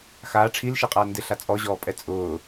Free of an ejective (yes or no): no